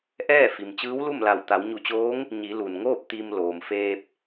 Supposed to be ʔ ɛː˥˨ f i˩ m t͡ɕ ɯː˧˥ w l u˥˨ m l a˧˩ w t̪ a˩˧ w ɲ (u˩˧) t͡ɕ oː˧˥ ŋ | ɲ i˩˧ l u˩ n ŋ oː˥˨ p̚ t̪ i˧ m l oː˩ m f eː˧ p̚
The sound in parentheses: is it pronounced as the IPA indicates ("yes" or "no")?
no